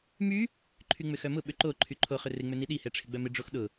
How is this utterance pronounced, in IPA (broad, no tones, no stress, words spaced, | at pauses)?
my | ǃʰyŋ͡mʏxœmʊ ɓʏǃo ǃʰyǃʰo χʏrɪ ŋ͡møniɗi hɛʈ͡ʂʰɪɡ͡bœmɪ ɖ͡ʐoxɗʊ